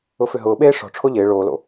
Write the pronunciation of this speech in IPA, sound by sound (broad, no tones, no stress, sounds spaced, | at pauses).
ʊ f ʏ ɦ ʊː ɓ eː ʂ ɔ̤ ʈ͡ʂʰ o ʎ ɪː ɭ oː l o̰